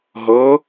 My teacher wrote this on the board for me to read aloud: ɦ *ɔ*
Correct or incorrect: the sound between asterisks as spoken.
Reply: incorrect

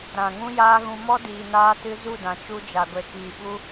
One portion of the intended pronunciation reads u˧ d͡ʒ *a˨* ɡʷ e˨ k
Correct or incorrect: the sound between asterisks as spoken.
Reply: correct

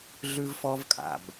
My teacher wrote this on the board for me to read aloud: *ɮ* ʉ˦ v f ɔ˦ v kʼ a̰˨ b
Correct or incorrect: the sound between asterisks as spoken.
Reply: correct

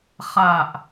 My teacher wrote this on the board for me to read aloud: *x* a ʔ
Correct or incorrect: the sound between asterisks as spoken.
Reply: incorrect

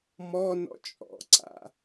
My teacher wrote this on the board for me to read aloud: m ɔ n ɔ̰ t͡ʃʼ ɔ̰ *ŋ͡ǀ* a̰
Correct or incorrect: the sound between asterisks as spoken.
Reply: incorrect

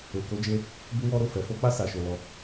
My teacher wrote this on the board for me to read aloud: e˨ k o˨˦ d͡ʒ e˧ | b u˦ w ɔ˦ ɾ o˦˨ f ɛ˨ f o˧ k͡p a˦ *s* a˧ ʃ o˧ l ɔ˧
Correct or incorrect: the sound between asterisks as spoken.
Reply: correct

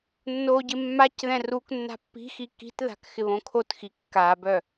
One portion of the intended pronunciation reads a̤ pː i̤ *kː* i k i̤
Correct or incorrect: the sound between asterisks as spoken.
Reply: incorrect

